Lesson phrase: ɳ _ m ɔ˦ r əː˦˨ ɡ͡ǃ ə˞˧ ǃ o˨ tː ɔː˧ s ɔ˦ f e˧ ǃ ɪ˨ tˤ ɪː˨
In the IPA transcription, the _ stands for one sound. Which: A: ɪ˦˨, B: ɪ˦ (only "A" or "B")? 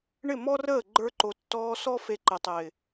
A